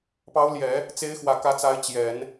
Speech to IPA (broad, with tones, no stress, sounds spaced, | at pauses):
p ɑ˧˥ ʊ̯ l j ɛ˨˩˦ | t͡s e˧˥ ɪ̯ x w ä˨˩ k ä˧˥ t͡s a˧˥ ɪ̯ t͡ɕ j ɛ˨˩˦ n